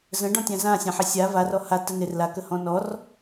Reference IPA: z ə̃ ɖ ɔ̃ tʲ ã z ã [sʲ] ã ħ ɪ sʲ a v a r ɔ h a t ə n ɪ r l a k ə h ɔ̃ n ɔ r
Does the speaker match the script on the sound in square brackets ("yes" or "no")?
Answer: yes